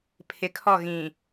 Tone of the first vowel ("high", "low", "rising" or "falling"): low